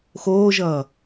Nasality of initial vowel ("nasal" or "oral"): oral